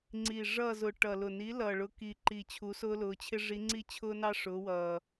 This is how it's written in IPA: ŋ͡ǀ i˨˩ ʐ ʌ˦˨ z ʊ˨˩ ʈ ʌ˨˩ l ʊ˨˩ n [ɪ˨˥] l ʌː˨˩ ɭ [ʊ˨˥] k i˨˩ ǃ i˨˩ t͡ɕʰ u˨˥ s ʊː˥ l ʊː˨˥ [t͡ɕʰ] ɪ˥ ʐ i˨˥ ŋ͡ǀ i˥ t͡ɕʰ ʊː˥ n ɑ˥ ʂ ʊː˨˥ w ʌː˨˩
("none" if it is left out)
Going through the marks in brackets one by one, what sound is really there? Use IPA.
i˨˥, ʊ˨˥, t͡ɕʰ

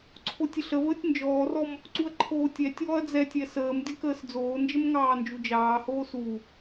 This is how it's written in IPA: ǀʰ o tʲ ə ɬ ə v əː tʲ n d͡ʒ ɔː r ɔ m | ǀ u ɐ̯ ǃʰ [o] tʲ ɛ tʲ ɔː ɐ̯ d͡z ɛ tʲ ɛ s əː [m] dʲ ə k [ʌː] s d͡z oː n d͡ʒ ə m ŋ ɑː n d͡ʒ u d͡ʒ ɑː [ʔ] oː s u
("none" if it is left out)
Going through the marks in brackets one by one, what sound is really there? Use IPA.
oː, m, əː, h

